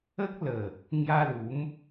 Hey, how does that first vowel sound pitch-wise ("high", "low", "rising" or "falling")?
high